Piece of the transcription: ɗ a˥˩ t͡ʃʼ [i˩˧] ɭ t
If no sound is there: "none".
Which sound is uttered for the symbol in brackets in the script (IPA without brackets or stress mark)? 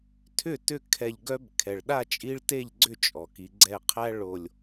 i˦